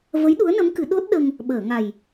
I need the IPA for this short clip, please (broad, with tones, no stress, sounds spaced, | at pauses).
v ə˧˥ j ɗ u˧˥ ə̯ n ə˧˥ m k ɨ˨˩˦ ɗ o˦˥ t̚ ɗ ə˧ ŋ | ɓ əː˨˩˨ ŋ a˨˩ j